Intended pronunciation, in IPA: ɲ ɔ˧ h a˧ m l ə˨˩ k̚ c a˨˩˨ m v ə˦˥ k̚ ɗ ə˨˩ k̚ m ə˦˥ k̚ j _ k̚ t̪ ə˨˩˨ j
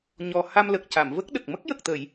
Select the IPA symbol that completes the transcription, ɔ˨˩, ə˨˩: ə˨˩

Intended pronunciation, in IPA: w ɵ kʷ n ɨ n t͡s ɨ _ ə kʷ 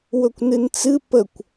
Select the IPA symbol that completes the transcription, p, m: p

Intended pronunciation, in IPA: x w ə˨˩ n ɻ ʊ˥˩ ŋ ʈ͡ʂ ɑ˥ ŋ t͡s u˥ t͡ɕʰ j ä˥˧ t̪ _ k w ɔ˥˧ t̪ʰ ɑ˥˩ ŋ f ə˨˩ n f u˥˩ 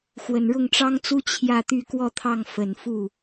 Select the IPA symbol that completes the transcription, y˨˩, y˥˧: y˥˧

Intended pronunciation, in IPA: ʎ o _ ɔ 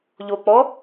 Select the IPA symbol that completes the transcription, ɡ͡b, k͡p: k͡p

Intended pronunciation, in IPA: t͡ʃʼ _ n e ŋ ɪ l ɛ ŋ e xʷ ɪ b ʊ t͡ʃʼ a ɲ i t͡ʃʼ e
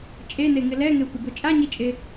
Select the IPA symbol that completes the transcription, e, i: e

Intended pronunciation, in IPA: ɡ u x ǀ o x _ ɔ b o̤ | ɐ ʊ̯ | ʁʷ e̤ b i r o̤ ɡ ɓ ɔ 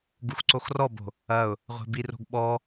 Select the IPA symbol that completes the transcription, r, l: r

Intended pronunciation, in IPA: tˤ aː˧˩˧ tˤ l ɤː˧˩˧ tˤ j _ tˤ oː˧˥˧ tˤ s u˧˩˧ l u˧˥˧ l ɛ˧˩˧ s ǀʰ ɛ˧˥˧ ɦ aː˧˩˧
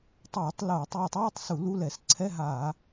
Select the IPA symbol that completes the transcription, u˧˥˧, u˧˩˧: u˧˩˧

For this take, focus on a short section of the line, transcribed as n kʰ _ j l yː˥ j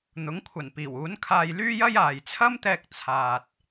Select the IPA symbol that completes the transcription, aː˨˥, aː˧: aː˧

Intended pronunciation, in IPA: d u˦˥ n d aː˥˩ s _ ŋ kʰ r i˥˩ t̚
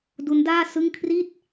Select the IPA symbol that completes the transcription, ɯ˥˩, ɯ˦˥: ɯ˥˩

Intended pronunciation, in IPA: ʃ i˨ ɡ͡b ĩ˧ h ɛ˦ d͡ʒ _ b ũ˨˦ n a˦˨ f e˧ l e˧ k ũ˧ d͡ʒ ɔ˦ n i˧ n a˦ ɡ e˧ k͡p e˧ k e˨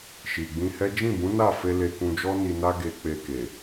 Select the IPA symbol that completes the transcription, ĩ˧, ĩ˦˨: ĩ˦˨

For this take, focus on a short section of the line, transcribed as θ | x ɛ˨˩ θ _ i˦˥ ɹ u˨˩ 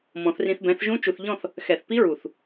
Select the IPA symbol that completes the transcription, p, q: p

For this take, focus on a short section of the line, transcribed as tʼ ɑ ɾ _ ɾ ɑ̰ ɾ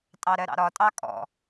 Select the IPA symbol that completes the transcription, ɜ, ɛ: ɜ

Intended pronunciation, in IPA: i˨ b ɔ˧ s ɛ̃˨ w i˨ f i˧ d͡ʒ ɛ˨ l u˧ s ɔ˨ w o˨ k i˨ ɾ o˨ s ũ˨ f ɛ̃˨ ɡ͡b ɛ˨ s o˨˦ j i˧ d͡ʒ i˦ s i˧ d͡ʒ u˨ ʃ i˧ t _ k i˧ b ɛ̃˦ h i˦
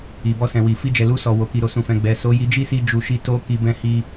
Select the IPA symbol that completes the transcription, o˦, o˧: o˦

